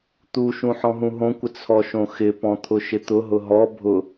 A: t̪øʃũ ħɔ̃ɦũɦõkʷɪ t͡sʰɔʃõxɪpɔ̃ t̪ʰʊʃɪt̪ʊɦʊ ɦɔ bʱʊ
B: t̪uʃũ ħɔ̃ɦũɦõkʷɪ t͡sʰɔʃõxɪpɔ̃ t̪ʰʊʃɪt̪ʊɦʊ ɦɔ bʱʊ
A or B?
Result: B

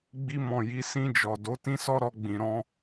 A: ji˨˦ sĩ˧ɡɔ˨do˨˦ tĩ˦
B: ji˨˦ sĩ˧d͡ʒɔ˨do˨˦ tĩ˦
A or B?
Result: B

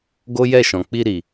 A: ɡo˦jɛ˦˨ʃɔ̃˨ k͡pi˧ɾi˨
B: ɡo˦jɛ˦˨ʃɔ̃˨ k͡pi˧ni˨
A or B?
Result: A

